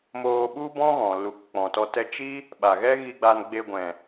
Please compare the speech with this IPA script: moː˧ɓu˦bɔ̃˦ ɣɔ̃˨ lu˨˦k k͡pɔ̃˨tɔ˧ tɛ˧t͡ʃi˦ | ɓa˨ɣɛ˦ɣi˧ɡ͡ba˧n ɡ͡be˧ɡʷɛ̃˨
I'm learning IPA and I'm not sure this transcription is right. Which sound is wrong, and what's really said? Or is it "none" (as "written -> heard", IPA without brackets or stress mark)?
none